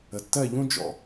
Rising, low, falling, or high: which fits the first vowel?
low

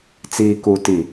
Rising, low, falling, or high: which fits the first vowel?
low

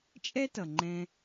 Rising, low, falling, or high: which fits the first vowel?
high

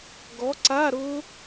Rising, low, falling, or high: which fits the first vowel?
rising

